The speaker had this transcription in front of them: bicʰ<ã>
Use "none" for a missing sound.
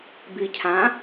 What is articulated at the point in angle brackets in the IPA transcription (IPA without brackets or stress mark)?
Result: ã